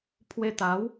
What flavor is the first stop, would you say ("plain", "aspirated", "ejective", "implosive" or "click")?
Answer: aspirated